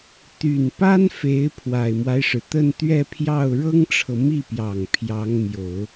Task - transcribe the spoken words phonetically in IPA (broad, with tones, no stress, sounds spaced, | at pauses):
t̪ y˨˩ n p a˥ n f e˧˥ ɪ̯ pʰ w a˨˩ ɪ̯ m w a˦ ɪ̯ ʂ ɻ̩˩ t̪ ə˥˧ n t̪ ɥ ɛ˥˧ pʰ j ɑ˥˩ ʊ̯ ɻ ɤ˥ ŋ ʈ͡ʂʰ ɤ˨ m i˥˩ p j ɑ˨˩ ŋ pʰ j ɑ˧˥ ŋ m j o˨˩˦ ʊ̯